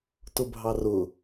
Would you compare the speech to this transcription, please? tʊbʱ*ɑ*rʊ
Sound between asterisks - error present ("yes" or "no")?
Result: no